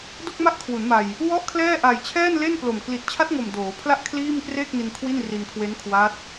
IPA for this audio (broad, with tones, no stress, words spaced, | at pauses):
do˥˩k̚ma˥˩ʔkʰwu˩˦nma˨˩j | wɔ˥˩ʔkʰlɛː˥˩ ʔa˨˩jt͡ɕʰɛː˥˩nle˥˩nplo˨˩m kli˨˩t̚ t͡ɕʰa˦˥t̚ŋo˨˩m doː˩˦pʰla˥˩ʔ kʰliː˥˩mkreː˥˩k̚ni˧n kʰwi˥˩nri˧nkʰwe˦˥nkʰwa˦˥t̚